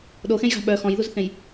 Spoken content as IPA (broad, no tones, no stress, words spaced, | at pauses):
ɗoxẽjɣa̤ ɓœ xɔ̃jðuzθẽj